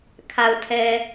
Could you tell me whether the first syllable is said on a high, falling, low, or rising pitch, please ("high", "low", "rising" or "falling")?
low